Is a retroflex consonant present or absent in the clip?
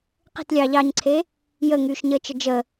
absent